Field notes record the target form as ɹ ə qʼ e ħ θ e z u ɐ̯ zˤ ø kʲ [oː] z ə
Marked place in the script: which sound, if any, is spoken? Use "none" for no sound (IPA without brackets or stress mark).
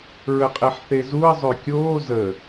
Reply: oː